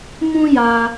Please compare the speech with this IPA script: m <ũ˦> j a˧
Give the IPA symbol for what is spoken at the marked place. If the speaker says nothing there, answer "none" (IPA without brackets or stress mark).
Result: ũ˦